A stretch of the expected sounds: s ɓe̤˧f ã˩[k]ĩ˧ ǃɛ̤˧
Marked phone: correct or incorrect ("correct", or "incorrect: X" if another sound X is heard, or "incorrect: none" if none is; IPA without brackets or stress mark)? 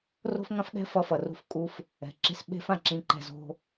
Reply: incorrect: ǁ